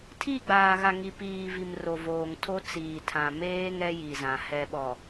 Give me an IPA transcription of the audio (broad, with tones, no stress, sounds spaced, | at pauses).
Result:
tʰ i˦˨ ɡ͡b aː˨ ɣ a˨ ŋ i˨ p iː˨ v i˨ m r o˨ v oː˨ ŋ tʰ o˦ t͡s iː˨ tʰ ã˨ m eː˦ ŋ ɛ˦ j i˨ z ã˨ h ɛ˨ ɓ ɔ˨